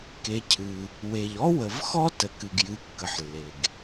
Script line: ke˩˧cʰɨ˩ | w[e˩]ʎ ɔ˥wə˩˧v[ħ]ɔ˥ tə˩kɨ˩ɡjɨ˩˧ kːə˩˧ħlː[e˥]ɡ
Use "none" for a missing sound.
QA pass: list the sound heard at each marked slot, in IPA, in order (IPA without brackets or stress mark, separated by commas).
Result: e˩, x, e˩